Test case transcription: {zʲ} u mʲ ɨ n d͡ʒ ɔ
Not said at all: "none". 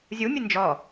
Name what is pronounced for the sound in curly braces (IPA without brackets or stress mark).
zʲ